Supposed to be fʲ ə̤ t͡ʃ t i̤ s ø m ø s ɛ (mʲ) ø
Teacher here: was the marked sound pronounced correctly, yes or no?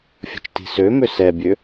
no